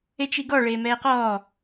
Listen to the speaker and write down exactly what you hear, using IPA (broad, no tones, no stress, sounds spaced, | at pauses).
e t͡ʃ i ɡ ɔ ɭ eː m ɛː q ɔː